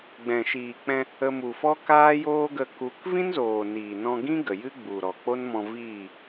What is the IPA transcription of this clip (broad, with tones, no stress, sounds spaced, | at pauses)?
ɡ͡b ɛ̃˨ ʃ iː˨ k͡p ɛ̃˧ | ə˧ m u˨ f ɔ˦ k aː˦ j oː˦ ɡ ə˧ k u˨˦ k v ĩ˦ n z oː˨ n iː˨ n ɔ̃˧ ɡ ĩ˦ ɡ ə˨ j ɨ˦ ɡ͡b u˨ ɾ ɔ˨ k͡p o˦ n m ɔ̃˧ v iː˦˨